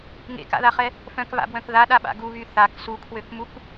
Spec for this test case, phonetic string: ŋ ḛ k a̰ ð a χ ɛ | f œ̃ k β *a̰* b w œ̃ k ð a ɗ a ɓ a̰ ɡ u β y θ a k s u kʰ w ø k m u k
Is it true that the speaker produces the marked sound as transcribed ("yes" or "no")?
yes